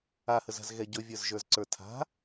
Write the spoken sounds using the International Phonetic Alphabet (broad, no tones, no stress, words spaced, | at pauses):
ahəza̤z ɣɛɟɵvʲə˞zʒə˞z ǀə˞tʰa̤